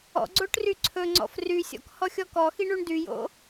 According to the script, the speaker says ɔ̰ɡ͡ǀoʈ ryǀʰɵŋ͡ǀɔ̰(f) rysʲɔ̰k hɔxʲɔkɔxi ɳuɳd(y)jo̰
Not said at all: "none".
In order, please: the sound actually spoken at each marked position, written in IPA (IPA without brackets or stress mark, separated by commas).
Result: f, y